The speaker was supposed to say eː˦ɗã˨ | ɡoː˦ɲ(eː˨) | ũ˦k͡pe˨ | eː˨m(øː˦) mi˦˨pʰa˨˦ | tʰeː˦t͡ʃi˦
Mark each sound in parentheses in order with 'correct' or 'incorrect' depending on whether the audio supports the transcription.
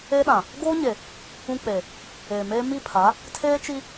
incorrect: e˨, incorrect: eː˦

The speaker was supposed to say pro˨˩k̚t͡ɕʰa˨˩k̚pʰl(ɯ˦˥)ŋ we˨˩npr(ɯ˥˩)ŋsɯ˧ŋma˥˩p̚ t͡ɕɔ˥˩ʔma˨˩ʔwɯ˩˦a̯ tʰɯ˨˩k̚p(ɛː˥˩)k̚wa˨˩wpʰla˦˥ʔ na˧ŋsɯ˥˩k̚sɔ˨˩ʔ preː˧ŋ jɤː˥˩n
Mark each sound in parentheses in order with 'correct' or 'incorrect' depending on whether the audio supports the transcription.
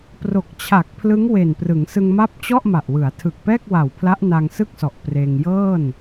correct, incorrect: ɯ˩˦, correct

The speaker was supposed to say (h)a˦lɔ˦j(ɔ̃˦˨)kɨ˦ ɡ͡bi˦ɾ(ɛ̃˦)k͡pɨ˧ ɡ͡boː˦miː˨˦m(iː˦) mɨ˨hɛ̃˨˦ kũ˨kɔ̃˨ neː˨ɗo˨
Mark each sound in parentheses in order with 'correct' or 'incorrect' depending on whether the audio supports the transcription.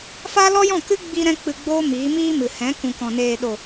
incorrect: f, correct, correct, correct

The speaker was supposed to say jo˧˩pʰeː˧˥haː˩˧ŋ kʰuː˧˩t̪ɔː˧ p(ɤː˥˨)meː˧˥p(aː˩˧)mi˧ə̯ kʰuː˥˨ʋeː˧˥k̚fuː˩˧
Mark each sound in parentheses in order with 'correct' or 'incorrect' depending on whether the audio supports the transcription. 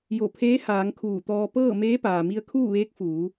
correct, incorrect: aː˩

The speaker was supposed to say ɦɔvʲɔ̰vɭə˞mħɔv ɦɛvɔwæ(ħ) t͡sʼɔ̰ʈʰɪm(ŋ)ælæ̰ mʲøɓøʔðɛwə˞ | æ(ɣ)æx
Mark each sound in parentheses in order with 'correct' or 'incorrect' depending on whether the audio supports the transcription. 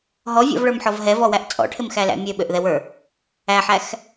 incorrect: ʔ, incorrect: x, incorrect: ħ

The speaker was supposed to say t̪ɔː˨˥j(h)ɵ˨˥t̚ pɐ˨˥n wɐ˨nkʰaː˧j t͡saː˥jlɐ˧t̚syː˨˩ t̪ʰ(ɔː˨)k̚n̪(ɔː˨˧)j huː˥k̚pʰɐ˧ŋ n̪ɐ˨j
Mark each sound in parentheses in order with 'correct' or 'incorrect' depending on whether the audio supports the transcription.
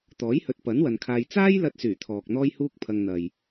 correct, correct, incorrect: ɔː˥

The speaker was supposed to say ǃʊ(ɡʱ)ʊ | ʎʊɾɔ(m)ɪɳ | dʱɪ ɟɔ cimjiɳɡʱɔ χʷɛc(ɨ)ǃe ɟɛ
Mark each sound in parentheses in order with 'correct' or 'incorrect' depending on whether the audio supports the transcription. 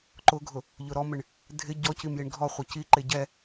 correct, correct, incorrect: i

